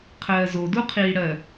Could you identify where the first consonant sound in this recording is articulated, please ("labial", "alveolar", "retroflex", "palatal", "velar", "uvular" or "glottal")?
uvular